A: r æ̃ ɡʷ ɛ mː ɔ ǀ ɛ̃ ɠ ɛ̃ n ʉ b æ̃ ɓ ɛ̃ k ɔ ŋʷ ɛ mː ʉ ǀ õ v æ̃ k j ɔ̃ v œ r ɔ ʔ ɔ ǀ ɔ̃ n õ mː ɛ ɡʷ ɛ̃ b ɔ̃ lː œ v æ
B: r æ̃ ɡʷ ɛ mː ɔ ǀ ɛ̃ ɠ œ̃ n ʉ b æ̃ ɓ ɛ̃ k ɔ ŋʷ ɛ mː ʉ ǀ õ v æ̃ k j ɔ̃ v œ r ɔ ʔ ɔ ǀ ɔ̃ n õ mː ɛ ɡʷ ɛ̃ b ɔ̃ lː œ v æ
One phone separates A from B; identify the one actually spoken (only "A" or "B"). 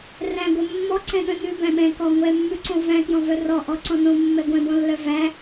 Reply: B